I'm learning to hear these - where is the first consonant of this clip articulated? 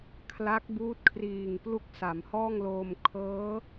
velum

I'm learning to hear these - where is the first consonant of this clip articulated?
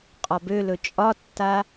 uvula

